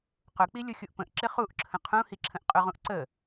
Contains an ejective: yes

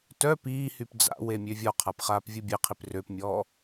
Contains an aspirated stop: yes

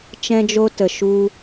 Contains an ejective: no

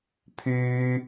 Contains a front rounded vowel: yes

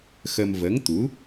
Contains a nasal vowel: no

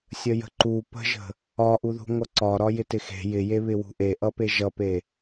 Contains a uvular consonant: no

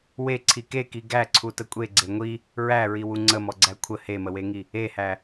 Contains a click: yes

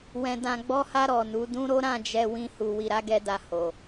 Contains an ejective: no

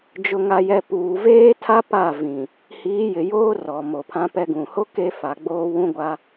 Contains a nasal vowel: yes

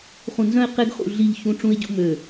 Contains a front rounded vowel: yes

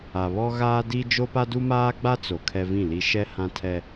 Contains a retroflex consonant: no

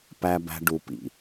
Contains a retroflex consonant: yes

